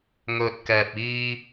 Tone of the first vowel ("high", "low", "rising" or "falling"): low